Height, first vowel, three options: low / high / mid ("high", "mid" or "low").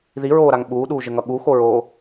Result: high